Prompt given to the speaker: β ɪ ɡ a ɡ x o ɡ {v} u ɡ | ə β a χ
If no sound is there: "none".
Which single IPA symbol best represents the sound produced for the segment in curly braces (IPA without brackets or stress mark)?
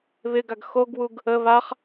w